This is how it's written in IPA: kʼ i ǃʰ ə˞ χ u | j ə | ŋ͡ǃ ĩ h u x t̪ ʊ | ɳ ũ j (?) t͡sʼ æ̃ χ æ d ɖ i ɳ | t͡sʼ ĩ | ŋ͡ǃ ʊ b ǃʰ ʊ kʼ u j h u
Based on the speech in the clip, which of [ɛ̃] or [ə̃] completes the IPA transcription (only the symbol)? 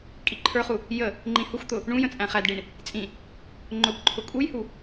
ə̃